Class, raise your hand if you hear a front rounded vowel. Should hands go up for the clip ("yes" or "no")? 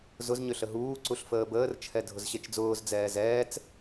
yes